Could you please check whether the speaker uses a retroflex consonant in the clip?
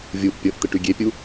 yes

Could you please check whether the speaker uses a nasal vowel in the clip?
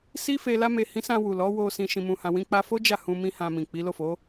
yes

